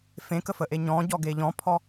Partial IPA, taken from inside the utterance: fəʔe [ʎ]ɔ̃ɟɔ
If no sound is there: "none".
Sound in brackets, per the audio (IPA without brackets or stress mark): ɲ